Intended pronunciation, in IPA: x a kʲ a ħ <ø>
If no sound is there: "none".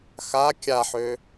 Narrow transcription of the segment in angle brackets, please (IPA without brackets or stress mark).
ø